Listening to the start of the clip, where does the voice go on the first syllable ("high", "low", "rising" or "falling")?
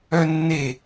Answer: high